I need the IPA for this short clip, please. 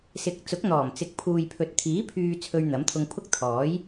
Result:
sɪ˨˥k̚t͡sʊ˨˥k̚n̪ɔː˨˩mt͡sɪ˨˥k̚ pʰuː˨jpʰɵ˨t̚t̪ʰiː˨˥ pʰyː˨ t͡sʰɵ˧ɥn̪ɐ˨˥mt̪ʰʊ˧ŋpʰʊ˥k̚ t̪ʰɔː˨˥j

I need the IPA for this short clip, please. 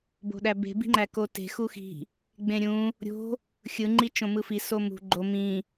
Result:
bo̤ɗæbe̤ bi̤ŋ͡ǃækote̤ xuxi̤ | ɡ͡bẽɾʲũ | ɾʲo̤ | xʲɯ ŋ͡ǃit͡ʃõmɯfi somṳ ɡ͡ǃo mĩ

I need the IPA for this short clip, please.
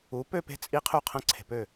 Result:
u˨˥pø˥˧pe̤˦˥ t͡sʼi˦˥qʰu˥˩qʰɐ̃˦˥ ǀʰe̤˨pø˥˩

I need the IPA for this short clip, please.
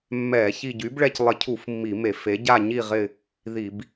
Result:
mːɛ˧˩˧ çi˦˨ ɟy˨˥bɭɛ˦˨clˠɪ˧˩˧cʰu˧˩˧f mːi˧˩˧me˧˩˧ fe˨˥ ɟa˦˨ɲi˦˨ ʁɪ˦˨ | ði˧˩˧b

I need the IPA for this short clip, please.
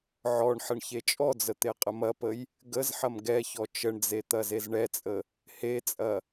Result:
ʕɔɳ ħəɳçet͡ʃʼɔd͡zə t̪eqʼəmɐpəj | ɡəzħɐm ɡɛçɔ t͡ʃəɳd͡ze t̪ɐzezɳɛt͡sʼə | het͡sʼɐ

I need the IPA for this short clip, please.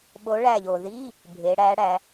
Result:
ɓo˧˥ɭæ˦˨ʎo˩ ði˧˥˧ | bʱe˩˧ ɽæ˧˥ɽæ˩˧

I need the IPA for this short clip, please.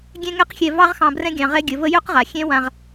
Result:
ɡʲɛ̃˦ŋɛ˦q xʲɛ˧ vɑ˦ʁxɑ̃˧brɛ̃˦ ɡʲɑ̃˧ʁɛ˦ɡʲə˨˦və˦ jø˦qʁa˨ xʲɛ̃˦wã˧ʁ

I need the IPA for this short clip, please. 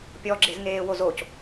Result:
pʲɔɡ͡ǁez ŋeːwozoc

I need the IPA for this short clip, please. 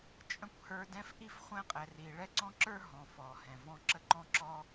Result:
t͡ʃʼə̃˥kʷhə˞˦dɛ̃˥f ʔi˥fχʷɛ̃˦qʼɛ˨ ri˨ ɭɛ˥ǀɔ̃˥ǁə˞˥ ɦɔ̃˩ fɔ˩hɛ̃˩vɔ̃˦ǁə˥ ǃɔ̃˥ǁɔ˥

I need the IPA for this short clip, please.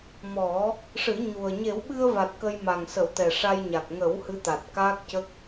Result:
mɔ˨˩˦ | ʂɨ˨˩˦ɲu˨˩ə̯ ɲe˨˩˦wɓɨ˧ə̯va˨˩t̚ kə˧jma˨˩ŋsə˨˩˦w t̪ɛ˨˩ʂa˧jɲa˨˩k̚ ŋə˨˩˦w hɨ˧˥t̪a˨˩t̚ kaː˦˥k̚cə˦˥k̚

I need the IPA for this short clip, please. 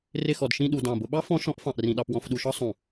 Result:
rɪ˥˧xɔ˧dʃĩ˥˧ɗu˧ dɑ̃˧˩bʊ˧ɓɑ˥ fɔ̃˥ʃɔ̃˥ʔ fɑ̃˧ʔrĩ˧ɗɑ˧p wɔ̃˧fɗu˧ʃɒ˥ sˤũ˧˩

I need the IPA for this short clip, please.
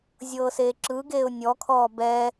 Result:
zʲɤːseːǁɯɡeːʊ̯ nʲɔkʰɔː bɛ

